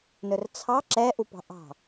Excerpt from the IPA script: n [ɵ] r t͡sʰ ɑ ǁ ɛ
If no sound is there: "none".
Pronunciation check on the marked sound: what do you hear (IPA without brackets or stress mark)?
ɵ